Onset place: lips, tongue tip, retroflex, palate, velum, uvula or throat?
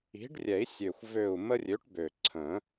retroflex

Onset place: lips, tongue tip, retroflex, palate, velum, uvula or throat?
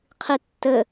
uvula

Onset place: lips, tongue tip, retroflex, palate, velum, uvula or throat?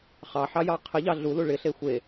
uvula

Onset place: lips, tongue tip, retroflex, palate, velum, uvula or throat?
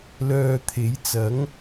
tongue tip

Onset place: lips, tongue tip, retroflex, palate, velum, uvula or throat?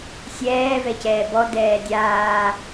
tongue tip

